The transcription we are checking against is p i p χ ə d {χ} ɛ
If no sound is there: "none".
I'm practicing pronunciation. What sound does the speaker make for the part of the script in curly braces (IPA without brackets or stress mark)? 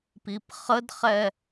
χ